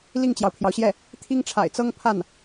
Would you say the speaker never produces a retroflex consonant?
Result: no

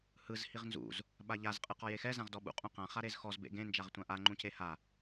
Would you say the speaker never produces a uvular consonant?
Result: no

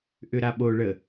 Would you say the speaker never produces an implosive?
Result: no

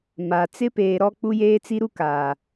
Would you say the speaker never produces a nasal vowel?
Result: yes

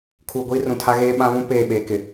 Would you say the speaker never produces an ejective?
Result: yes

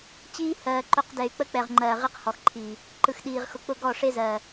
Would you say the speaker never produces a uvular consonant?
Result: no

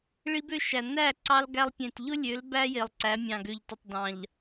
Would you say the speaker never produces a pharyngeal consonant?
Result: yes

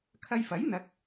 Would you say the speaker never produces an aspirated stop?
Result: no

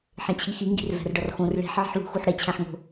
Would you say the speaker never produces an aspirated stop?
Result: no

